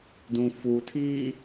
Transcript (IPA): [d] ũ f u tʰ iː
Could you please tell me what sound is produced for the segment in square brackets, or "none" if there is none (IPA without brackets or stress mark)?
d